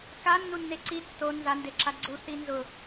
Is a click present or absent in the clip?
present